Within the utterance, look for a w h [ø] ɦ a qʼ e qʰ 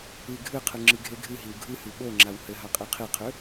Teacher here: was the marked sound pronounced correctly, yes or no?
no